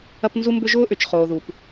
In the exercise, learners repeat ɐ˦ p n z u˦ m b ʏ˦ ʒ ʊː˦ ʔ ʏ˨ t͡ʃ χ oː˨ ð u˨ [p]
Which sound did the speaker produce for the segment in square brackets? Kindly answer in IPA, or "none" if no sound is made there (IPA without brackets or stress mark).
p